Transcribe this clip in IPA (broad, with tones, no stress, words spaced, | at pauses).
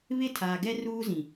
βɪ˦˨tʰaː˨ɡɛ˦ ruː˦zĩ˨